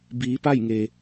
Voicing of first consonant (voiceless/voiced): voiced